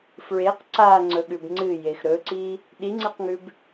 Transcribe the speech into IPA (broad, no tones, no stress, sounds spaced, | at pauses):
f ɹ e q ǀ a ŋ͡ǀ ɵ ɠ ʉ b ŋ͡ǀ ɨ j e x ɾ ɵ ǀ i | ɗ i ŋ͡ǀ e q ŋ ʉ b